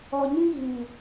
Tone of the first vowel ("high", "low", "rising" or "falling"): low